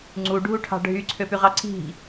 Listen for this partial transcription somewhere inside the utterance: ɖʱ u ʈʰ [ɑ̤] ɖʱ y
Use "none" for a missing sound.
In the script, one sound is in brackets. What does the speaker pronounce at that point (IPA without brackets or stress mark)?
ɑ̤